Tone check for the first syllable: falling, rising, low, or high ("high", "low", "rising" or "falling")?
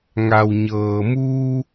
low